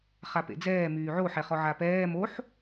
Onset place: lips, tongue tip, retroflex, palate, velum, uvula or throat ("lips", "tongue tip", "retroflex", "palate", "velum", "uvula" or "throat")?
uvula